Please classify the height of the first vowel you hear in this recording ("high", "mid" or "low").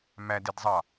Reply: low